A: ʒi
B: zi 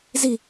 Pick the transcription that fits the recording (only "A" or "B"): B